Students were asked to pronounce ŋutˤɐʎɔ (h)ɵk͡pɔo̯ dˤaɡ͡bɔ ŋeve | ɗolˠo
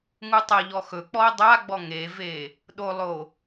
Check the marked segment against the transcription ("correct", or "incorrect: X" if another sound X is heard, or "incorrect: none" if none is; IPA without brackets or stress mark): incorrect: x